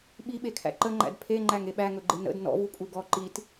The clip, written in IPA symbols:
ɓiɓekʰæ̰ ǃəŋ͡ǃæ̰d pʰeŋ͡ǃæŋe ɓæŋɵɡ͡ǃe nə̰d nɔ̰vukʼu ɡɔ ǃit

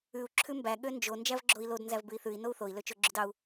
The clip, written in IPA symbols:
ʉu̯ ǁʰʉmbæ ɠønd͡ʒo nd͡ʒævɡ͡ǁoi̯lod nzævbʉi̯θʉi̯ nou̯θoi̯ løt͡ʃoɡ͡ǁʉdɑu̯

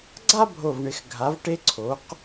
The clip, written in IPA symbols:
ɡ͡ǀa˥bʱo˧˩vɳɪ˩˧x ɡʱa˩˧vʈe˧ ǀʰo˩˧q

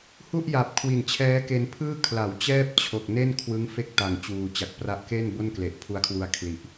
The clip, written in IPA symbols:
hu˥˩ʔja˨˩p̚ kʰwi˨˩nt͡ɕʰɛː˦˥ke˧n pʰɯː˥˩ kʰla˩˦wt͡ɕɛː˥˩p̚ t͡ɕʰo˨˩k̚ne˥˩n kʰwɯ˦˥ŋ fe˥˩k̚ta˨˩ŋ t͡ɕuː˨˩t͡ɕa˨˩k̚ pra˦˥ʔke˥˩n bo˥˩nkle˨˩ʔpʰu˦˥a̯kʰwu˧a̯ kʰli˨˩ʔ

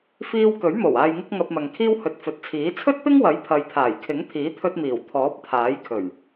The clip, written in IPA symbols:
fiː˧w kɵ˨˥ɥmo˨˩w aː˨jŋɪ˧k̚ ŋɐ˧p̚mɐ˨ŋkʰiː˥w hɵ˨t̚ fɵ˨t̚t͡sʰiː˨˥ t͡sʰɵ˥t̚pɪ˥ŋwɐ˨˥j pʰɐ˨jt̪ʰaː˨˩j kʰɪ˨˥ŋt̪ʰiː˨˥t̪ʰɵ˧t̚miː˨˩w t̪ʰɔː˨˥p̚t̪ʰaː˨˥jkʰɵ˨˩ɥ

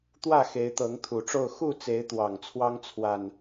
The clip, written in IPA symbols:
t̪wä˥˨ xe˨˦ɪ̯t̪ɤ˨˦ŋ t̪ʰu˨˩ʈ͡ʂo˥˨ʊ̯ xu˥˨t͡se˨˦ɪ̯ t̪wɑ˨˩ŋt͡sʰwɑ˦ŋ t͡sʰwa˨˩n

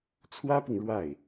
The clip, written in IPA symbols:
t͡sʰwä˥pi˨ŋ ɻwa˥˩ɪ̯

